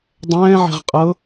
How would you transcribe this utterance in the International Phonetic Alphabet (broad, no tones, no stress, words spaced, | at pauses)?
dˤɛ̃ː ʕe̤ʁqʼɤ